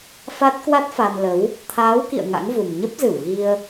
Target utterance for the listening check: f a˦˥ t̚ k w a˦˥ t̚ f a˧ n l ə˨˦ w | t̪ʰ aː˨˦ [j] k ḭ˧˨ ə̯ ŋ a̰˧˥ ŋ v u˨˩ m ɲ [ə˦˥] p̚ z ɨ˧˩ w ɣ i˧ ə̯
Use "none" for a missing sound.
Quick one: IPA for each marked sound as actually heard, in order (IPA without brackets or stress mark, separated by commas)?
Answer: w, ə˦˥